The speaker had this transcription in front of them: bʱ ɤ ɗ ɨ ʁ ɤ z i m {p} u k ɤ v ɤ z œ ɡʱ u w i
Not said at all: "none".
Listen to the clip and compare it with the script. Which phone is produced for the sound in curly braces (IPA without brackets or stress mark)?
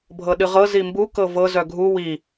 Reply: b